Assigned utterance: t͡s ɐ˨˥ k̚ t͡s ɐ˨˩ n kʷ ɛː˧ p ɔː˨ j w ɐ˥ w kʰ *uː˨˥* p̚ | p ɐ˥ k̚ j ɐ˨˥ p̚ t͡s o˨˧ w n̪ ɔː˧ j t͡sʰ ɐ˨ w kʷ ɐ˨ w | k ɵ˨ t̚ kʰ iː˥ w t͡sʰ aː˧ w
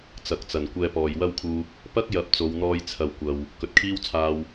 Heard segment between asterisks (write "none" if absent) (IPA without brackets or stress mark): uː˧